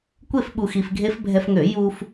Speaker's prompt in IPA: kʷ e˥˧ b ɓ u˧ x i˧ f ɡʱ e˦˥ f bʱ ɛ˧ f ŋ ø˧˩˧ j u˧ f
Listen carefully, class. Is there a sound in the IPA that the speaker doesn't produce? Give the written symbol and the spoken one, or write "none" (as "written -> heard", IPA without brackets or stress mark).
b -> f